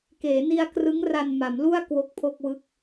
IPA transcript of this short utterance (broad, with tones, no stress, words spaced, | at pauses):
keː˩˦ni˧a̯krɯ˦˥ŋra˧n ma˩˦mlu˥˩a̯ kwo˦˥k̚pʰo˥˩k̚wɯ˥˩k̚